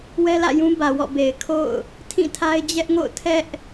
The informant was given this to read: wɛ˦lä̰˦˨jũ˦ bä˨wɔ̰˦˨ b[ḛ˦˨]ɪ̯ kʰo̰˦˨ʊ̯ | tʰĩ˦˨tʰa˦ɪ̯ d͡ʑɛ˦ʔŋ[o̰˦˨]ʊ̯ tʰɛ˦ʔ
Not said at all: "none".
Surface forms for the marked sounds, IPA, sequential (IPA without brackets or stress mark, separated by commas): e˨, o̰˦˨